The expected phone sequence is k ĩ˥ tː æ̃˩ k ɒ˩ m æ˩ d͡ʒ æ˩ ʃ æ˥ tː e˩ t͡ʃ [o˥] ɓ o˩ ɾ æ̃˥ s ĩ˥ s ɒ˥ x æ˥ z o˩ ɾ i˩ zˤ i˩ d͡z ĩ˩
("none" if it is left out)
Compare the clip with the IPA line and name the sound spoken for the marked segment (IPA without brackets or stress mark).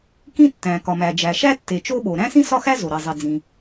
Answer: o˥